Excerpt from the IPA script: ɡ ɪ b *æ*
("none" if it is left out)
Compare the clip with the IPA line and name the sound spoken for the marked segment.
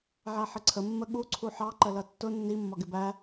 æ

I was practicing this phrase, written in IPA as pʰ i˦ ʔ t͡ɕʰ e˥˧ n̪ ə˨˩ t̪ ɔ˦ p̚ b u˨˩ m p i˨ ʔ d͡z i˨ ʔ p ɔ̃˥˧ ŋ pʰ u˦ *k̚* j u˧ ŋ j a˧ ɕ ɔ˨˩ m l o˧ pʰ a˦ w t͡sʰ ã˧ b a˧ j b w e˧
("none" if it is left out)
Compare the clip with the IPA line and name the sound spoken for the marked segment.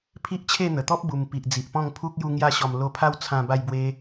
k̚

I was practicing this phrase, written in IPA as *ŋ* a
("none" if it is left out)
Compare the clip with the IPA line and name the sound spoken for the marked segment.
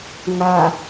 ŋ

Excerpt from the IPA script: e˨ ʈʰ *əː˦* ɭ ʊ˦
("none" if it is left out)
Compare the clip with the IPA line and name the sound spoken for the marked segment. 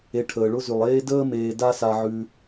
əː˩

